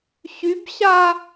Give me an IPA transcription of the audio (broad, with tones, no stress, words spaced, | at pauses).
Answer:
ɕy˨˦bɕa˦